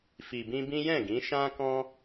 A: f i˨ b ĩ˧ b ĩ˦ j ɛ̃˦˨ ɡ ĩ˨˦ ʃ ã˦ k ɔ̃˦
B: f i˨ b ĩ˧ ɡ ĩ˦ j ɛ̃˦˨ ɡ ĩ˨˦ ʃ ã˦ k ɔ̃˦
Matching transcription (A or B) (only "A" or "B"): A